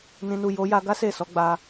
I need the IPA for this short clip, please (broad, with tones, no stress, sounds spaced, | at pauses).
n ĩ˨ n u˨ j o˨˦ j a˧ ɡ a˦ s e˦˨ s ɔ˨˦ ɡ͡b a˧